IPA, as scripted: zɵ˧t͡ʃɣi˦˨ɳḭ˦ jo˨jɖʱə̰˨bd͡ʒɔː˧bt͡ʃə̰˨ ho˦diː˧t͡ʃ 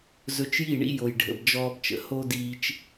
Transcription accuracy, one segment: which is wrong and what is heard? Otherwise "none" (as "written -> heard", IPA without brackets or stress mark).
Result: ɣ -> j